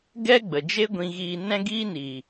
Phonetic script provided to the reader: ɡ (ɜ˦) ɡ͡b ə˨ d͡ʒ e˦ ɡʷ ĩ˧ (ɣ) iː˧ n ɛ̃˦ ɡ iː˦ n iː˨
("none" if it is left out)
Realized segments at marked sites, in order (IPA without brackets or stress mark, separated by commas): ɛ˦, ɣ